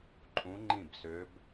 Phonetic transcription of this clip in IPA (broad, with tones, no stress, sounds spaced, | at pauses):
ǃʼ ũ˧˥ ŋ͡ǃ ĩ˥˩ b s ø˧˥ b